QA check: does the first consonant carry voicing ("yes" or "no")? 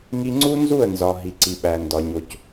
yes